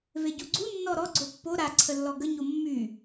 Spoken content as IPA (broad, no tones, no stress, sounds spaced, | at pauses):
v e ɟ u ɡ͡ǀ u nː ɔ ɾ ɔ ɡ͡ǀ o pː o ɾ a ǀʰ ə lː ɔ ɡ ə ɲ o mː y